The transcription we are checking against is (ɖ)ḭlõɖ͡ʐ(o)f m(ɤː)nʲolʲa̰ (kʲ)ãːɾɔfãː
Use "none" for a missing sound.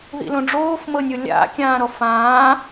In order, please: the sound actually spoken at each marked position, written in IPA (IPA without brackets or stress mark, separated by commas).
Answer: ð, oː, ɤ, kʲ